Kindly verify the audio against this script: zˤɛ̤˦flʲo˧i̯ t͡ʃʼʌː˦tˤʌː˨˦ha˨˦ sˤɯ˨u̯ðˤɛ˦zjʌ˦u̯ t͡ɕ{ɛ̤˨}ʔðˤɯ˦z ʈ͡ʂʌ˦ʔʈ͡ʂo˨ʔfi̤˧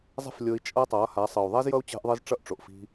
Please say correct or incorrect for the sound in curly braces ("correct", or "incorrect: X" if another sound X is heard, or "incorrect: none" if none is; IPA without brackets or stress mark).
incorrect: ɛ̤˦